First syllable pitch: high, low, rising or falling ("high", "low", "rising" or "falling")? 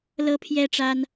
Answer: high